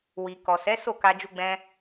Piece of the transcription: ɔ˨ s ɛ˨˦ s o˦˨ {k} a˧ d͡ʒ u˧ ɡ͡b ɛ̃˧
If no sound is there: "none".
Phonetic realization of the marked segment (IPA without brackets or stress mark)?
k